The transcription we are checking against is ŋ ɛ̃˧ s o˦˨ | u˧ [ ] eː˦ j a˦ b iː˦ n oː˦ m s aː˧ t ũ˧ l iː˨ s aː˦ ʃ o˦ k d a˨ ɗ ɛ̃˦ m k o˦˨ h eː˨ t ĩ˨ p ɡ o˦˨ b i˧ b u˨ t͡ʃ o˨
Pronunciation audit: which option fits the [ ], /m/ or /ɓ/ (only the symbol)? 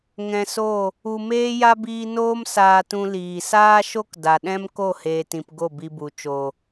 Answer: m